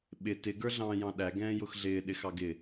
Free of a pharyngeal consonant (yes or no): yes